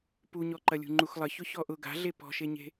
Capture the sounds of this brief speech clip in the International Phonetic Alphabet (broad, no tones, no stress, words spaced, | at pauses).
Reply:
puɲɔǃɐlʲṳ ŋ͡ǃuxlˠəçʊ çɔʔʊ ɡa̤ɮe pɔ̤ʃeɲe̤